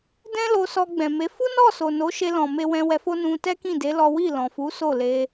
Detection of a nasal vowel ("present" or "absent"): present